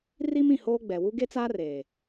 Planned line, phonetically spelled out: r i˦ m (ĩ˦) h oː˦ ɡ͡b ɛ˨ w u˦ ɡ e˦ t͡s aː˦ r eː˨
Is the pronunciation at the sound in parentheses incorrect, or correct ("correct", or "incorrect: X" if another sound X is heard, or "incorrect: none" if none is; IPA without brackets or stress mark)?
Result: incorrect: ĩ˨